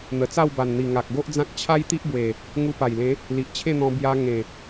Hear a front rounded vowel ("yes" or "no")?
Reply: no